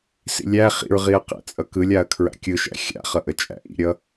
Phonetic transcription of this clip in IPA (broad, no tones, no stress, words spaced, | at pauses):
sḭlʲæ χḭɹʁiɐ̯qæ̰ t͡sʼʌkɯlʲaɐ̯ kʰɹa̰kʲɯʃæ̰ xʲa̰χʌʔə t͡ʃʼæ̰ʔḭɾʲʌ